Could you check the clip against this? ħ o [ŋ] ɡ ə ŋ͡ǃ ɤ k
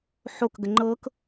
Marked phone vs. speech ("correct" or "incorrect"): incorrect